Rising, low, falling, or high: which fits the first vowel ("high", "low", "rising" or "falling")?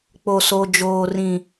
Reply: low